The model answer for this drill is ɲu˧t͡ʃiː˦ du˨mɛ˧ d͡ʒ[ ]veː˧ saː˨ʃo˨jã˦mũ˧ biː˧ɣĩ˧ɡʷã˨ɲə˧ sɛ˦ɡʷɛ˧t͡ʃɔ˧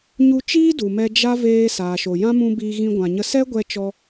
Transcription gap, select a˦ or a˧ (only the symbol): a˦